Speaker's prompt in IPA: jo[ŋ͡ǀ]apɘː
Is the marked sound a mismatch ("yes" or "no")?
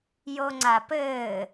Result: no